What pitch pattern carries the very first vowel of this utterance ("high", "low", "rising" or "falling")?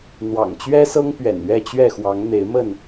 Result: low